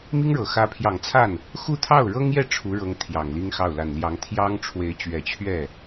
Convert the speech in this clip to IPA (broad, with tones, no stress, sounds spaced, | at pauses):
m i˥ ŋ ɻ ɤ˨˩ x ä˧˥ pʰ j ɑ˨˩ ŋ t͡sʰ a˥˩ n | x u˥˧ t̪ʰ ɑ˥˩ ʊ̯ ɻ ɤ˥ ŋ j ɛ˥˩ ʈ͡ʂʰ u˧˥ ɻ ɤ˧˥ ŋ t̪ʰ j ɑ˨˩ ŋ l i˥ ŋ x ɑ˥˩ ʊ̯ l a˨˩ n l j ɑ˧˥ ŋ t̪ʰ j ɑ˥ ŋ ʈ͡ʂʰ w e˧˥ ɪ̯ t͡ɕ ɥ ɛ˨˩ t͡ɕʰ ɥ ɛ˥˩